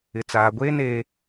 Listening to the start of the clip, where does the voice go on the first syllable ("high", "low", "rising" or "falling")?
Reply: low